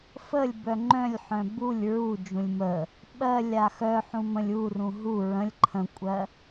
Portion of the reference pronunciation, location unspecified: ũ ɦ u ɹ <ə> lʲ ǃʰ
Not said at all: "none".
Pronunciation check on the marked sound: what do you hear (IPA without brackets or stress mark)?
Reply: ə̃